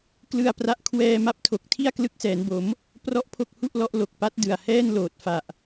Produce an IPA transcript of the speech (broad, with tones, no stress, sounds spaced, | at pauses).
k l ɯ˧ a̯ p r a˦˥ ʔ kʰ w ɛː˧ m a˦˥ p̚ tʰ o˨˩ k̚ tʰ i˥˩ a̯ k l ɯ˦˥ k̚ s ɛː˩˦ n b o˩˦ m | p r ɔ˥˩ ʔ pʰ o˥˩ k̚ h u˥˩ ʔ l ɔ˦˥ ʔ l o˨˩ k̚ p a˦˥ t̚ d ɯ˨˩ a̯ h ɛː˥˩ n l oː˨˩ t̚ f a˨˩ ʔ